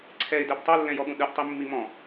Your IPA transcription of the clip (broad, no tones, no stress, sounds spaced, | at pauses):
ǀʰ ɛ ɪ̯ d ɛ b tˤ o lː ɛ̃ j ɔ ɠ ũ ɗ ɯ ʔ tˤ i mː i m ɔ̃